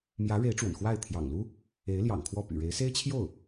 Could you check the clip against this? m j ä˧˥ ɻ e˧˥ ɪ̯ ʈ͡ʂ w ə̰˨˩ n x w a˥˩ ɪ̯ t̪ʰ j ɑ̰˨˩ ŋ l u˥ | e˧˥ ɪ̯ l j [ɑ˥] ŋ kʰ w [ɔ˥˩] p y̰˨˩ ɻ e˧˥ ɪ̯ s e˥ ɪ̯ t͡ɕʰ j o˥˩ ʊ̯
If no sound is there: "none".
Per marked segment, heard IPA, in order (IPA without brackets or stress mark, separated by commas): ɑ̰˨˩, ɔ˥˩